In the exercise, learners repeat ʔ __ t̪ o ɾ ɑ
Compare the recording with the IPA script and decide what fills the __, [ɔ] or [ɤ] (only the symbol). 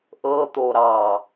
ɤ